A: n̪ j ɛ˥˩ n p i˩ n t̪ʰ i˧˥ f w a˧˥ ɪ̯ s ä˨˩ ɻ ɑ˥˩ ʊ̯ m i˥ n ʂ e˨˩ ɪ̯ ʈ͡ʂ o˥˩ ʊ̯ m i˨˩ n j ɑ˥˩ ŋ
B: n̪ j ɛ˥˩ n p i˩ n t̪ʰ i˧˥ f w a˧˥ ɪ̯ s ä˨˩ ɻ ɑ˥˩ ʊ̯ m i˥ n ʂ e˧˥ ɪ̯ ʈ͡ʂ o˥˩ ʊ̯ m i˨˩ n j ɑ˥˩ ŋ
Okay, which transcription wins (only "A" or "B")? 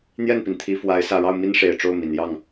A